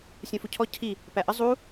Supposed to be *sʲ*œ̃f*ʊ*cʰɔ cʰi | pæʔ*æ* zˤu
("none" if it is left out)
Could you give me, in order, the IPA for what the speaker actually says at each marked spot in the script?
sʲ, u, ə

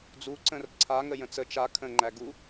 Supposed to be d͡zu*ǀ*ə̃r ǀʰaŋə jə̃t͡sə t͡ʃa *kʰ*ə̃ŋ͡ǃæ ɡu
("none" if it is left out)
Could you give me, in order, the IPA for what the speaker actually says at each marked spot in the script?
ǀ, kʰ

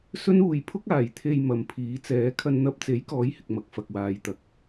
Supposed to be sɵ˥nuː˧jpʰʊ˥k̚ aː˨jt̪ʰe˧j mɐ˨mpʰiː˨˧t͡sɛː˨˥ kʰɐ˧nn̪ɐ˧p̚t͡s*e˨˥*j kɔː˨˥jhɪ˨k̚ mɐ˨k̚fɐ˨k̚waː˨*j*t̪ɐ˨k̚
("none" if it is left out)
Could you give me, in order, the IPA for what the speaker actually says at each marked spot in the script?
e˨˥, j

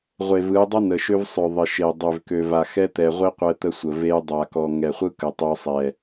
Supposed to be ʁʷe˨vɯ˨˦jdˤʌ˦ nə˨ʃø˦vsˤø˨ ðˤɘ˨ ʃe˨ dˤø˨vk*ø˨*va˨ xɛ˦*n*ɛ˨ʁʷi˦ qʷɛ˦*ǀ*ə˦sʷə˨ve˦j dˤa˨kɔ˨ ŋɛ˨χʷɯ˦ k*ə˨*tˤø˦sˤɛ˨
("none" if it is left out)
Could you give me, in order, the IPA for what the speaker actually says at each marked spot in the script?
ø˨, t̪, t̪, ə˨

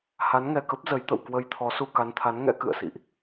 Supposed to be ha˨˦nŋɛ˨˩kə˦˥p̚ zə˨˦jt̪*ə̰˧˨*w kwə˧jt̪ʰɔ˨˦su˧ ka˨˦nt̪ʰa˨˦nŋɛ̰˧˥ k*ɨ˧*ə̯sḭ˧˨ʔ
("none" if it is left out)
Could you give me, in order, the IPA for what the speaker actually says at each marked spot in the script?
ə̰˧˨, ɨ̰˧˨

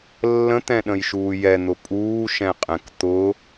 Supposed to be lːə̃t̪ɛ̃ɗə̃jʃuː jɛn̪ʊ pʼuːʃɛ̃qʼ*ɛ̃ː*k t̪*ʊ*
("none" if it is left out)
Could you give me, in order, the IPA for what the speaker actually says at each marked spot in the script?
ɛ̃, ʊ

